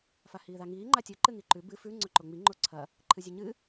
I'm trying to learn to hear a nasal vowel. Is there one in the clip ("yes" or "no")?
no